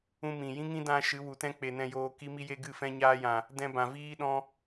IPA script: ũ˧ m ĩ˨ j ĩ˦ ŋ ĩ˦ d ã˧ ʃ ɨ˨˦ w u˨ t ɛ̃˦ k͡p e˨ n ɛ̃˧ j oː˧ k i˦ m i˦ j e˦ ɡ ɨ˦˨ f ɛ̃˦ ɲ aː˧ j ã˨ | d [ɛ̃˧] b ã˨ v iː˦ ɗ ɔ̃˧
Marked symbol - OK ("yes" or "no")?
yes